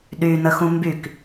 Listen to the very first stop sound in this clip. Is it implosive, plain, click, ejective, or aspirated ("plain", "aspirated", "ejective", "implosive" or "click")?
implosive